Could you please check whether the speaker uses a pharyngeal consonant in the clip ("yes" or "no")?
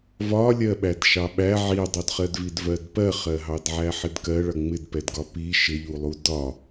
yes